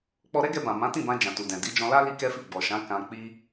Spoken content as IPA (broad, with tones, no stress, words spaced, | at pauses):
k͡pɔ˧ɾɛ˦ɡɛ˧bã˨ mã˨˦tĩ˦˨bã˧ d͡ʒã˨tu˨dɛ̃˨ di˨˦d͡ʒɔ̃˧la˦ li˦kɛ˦fi˦˨ ɡ͡bɔ˨ʃã˨˦ kã˧ k͡pi˧